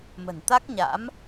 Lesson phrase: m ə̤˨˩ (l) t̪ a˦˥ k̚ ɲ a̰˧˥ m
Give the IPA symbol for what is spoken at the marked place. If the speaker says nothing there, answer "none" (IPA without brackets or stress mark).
n